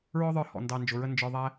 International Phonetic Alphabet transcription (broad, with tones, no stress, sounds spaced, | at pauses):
ɹ ɔ˦ ðˤ ə˞˧ h ɔ̰˨ n d ɑ˧ n d͡ʒ ʊ˨ ɹ ə˦ n d͡ʒ ə˞˧ ðˤ æ˦